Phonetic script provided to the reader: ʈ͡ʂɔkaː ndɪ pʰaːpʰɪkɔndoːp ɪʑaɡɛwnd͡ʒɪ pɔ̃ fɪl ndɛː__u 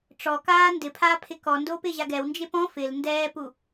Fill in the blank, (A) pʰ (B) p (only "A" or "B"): B